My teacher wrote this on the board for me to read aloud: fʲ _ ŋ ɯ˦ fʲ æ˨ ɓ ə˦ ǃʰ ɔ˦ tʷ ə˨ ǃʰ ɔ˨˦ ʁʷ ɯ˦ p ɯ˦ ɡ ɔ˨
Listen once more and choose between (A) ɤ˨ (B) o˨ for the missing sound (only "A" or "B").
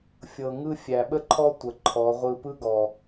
A